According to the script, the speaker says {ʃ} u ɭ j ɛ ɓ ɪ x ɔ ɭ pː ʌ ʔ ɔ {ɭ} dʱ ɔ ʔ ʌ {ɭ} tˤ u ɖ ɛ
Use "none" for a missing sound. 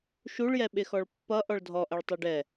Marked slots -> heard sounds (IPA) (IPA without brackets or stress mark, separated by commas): ʃ, ɭ, ɭ